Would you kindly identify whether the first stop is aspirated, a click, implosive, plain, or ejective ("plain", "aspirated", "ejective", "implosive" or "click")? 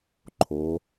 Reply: click